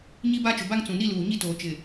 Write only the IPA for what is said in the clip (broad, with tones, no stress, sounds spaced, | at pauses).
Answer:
ɲ i˦ b a˦ t͡ʃ ʊ˨ b a˦ ŋ t͡s ũ˨ n i˦ l uː˨ ɲ i˦ t oː˨ t͡ʃ ɪ˨